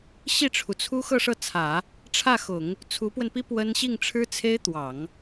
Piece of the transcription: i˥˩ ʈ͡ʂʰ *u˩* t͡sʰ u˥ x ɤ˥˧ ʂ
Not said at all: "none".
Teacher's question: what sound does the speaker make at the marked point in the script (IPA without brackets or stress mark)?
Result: u˩